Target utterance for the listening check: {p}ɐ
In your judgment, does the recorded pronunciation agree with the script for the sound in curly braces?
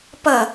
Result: yes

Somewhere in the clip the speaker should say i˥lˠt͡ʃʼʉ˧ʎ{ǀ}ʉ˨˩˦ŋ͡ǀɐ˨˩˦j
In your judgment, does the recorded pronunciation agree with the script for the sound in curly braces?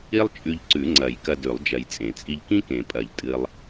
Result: yes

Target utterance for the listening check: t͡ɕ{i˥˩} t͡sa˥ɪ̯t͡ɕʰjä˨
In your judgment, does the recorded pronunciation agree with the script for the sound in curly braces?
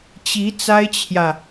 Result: no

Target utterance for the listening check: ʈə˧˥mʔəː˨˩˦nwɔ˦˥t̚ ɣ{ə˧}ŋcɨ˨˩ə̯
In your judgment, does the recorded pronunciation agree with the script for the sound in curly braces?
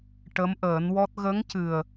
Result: no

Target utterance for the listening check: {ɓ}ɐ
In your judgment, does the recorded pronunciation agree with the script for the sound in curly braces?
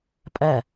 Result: no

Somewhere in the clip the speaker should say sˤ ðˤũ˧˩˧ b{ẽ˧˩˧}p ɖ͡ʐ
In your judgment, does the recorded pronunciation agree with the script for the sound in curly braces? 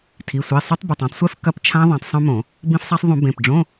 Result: no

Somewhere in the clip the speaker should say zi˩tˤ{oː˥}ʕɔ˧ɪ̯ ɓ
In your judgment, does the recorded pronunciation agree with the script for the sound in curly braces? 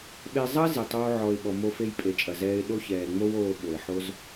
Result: yes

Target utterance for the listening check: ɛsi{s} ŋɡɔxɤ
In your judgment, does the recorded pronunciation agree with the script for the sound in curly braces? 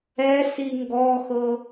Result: no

